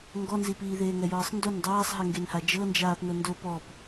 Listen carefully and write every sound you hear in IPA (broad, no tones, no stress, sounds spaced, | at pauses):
ŋ ɡ ɔ n z i p iː ð eː ŋ ɛ j ɤː sˤ n d o n dˤ aː sˤ ɦ ɛ ŋ ɡ e n h a d͡ʒ ɤ n d͡ʒ aː p n ɤ n d o p ɔ p